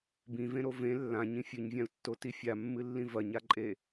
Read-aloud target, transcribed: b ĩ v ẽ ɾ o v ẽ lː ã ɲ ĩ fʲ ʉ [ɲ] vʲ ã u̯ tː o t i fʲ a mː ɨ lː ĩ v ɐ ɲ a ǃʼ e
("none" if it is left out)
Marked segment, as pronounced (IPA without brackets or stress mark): ɲ